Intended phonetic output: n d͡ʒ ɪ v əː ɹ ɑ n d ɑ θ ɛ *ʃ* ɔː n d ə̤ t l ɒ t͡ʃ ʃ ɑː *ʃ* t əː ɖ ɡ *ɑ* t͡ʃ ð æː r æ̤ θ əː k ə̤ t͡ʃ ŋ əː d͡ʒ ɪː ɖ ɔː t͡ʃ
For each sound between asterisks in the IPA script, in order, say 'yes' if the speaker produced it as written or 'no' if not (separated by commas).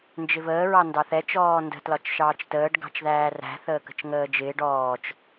no, no, no